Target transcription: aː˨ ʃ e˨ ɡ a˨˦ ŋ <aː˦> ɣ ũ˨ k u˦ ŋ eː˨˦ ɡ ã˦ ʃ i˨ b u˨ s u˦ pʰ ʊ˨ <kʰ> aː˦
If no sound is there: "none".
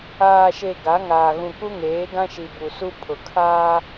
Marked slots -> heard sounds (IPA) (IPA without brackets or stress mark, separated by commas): aː˨, kʰ